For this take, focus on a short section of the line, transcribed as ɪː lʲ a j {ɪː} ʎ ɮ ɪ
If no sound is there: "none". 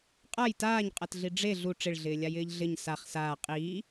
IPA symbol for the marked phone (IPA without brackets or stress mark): ɪː